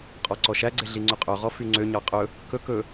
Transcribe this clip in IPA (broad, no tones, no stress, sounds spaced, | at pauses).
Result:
qʼ ɔ ǀ ɔ ʃ æ ɡ͡ǀ e ɮ i ŋ͡ǀ ɵ qʼ œ ʁ ɔ f y ŋ͡ǀ ø ɲ ɑ qʼ ɵ | k ɵ k ɵ